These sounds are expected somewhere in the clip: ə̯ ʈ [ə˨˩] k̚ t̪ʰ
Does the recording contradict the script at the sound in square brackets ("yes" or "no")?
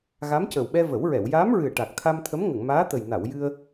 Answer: yes